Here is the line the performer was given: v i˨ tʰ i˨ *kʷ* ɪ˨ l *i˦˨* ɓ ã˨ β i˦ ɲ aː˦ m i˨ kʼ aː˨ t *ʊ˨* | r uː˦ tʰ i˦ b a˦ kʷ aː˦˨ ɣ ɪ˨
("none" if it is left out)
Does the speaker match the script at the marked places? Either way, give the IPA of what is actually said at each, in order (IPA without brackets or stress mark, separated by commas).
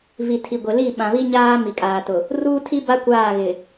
ɡʷ, i˦˨, ʊ˨